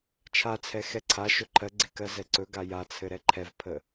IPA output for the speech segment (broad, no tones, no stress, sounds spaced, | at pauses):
t͡ʃʰ a t͡sʰ ɛ x ɛ ǀʰ a ʃ ɵ ǃʰ ɜ ɡ͡ǀ e k ɜ z ɛ ǀ ɵ ɡ a j a t͡sʰ ɘ ɾ ɛ ǃʰ ɛ v pʰ ə